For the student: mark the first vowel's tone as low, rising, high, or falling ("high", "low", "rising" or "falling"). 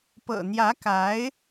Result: low